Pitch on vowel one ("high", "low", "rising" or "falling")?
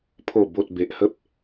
low